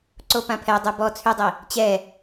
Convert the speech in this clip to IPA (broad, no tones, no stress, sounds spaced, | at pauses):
ǀ o p ã pʰ ɛ dˤ u b ɔ t͡sʰ y dˤ i | t͡ɕ ɛ